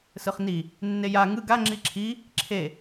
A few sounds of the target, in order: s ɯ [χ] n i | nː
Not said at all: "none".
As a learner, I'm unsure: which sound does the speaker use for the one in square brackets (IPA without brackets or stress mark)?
χ